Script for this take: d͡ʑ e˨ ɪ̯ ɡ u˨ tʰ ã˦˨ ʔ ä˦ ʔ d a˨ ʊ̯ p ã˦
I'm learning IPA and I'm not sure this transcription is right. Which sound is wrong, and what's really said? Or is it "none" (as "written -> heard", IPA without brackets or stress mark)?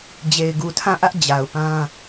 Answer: d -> d͡ʑ